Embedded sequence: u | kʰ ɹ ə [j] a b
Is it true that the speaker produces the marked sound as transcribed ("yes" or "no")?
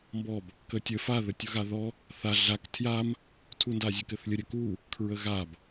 no